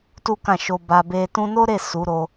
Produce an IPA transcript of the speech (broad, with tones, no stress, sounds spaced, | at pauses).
t u˦ k ã˦˨ ʃ o˧ b a˧ b e˧ t ũ˧ n o˦ ɾ e˦˨ s u˨˦ ɾ o˧